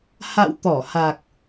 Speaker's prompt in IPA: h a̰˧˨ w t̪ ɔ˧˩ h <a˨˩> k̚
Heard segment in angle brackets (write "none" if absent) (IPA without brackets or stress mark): a˨˩